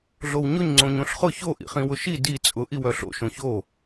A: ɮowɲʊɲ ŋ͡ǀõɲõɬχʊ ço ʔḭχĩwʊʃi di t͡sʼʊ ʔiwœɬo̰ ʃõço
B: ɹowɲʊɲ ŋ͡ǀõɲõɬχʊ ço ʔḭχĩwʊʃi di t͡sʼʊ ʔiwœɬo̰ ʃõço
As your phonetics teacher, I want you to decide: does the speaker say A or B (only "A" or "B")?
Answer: A